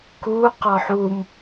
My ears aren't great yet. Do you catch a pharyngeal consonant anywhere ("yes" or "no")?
yes